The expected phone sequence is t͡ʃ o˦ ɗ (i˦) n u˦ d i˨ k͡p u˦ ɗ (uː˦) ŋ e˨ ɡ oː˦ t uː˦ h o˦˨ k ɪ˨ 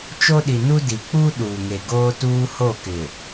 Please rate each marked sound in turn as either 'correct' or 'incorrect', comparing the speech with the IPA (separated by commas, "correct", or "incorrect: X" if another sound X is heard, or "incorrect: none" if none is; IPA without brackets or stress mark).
incorrect: i˨, incorrect: uː˨